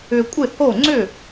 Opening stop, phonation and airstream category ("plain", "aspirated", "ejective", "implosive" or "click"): ejective